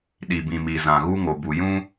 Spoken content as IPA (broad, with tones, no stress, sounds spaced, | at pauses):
ɗ i˨ b ĩ˨ m i˨ z ã˨ ɣ u˦ ŋ o˨ b u˨ j ũ˦